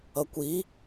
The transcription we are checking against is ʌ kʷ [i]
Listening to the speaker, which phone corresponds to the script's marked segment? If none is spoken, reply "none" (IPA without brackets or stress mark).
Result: i